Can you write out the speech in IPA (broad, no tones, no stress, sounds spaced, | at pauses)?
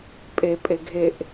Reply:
pʼ e pʼ e ɡʱ e ʔ